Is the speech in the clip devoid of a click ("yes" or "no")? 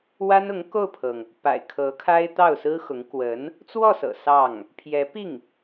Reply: yes